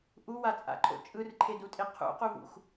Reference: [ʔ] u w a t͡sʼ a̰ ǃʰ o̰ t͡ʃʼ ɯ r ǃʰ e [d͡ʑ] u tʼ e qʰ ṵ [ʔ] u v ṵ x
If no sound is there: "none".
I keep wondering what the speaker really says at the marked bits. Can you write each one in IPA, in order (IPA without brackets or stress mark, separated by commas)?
ʔ, d, q